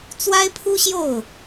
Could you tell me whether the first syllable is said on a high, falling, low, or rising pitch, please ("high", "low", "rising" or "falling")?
high